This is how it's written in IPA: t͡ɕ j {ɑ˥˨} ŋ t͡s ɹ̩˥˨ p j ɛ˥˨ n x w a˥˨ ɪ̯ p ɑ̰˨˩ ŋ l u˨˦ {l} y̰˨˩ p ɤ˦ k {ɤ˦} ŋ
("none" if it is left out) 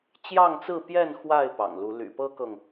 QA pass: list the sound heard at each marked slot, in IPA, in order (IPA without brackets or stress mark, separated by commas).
ɑ˥˨, l, ɤ˨